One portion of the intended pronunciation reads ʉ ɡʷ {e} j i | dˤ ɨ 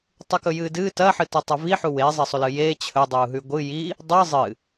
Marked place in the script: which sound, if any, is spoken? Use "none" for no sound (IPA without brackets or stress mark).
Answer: ɨ